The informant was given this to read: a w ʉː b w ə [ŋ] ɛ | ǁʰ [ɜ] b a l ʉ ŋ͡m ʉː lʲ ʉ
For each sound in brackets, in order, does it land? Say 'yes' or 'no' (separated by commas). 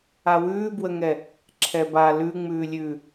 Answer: yes, no